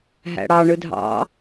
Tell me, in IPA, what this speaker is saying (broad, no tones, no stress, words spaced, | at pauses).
ɦæ̰ɽɑ ɳɯdʱɑ̰